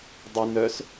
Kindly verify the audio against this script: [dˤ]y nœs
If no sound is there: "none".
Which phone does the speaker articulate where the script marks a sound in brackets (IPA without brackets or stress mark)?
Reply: dˤ